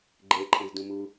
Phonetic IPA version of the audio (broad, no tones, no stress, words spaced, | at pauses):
ɡ͡ǃe ǃʰẽzdũmu